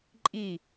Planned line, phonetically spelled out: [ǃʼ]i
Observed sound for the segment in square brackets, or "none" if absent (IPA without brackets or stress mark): ǃʼ